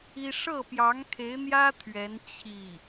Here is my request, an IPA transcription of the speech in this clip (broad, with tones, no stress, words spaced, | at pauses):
i˥ ʂɤ˥˩pjɑ˧˥ŋkʰe˧˥ɪ̯n̪jä˥ t̪ʰɥɛ˧˥n t͡ɕʰi˥˩